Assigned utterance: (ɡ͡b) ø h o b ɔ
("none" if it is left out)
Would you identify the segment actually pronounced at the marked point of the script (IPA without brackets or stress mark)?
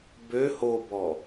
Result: b